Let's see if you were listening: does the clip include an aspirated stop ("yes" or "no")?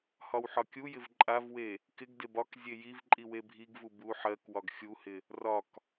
no